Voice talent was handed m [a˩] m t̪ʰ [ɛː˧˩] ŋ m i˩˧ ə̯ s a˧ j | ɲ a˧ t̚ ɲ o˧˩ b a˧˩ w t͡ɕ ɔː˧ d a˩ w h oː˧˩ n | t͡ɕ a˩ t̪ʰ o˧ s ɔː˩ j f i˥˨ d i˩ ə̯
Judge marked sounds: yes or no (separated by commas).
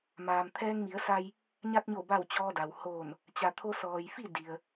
no, no